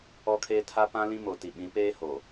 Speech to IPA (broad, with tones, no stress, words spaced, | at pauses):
ɔ˦kʰeː˦ tʰa˦pã˦ lĩ˦mo˨ti˨ ɓĩ˨˦peː˦ ho˨